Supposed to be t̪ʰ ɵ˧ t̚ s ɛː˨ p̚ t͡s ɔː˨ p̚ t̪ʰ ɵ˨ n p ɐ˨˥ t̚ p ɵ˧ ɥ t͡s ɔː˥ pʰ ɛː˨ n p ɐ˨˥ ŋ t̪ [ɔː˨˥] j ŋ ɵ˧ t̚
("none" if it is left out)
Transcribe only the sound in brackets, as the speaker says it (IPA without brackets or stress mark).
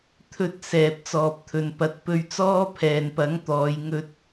ɔː˨˧